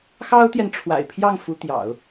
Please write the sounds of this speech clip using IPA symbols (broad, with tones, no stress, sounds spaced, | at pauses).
x ɑ˥ ʊ̯ t̪ j ɛ˨ n ʈ͡ʂʰ w a̰˨˩ ɪ̯ pʰ j ɑ˥˩ ŋ f u˧˥ t̪ j ɑ̰˨˩˦ ʊ̯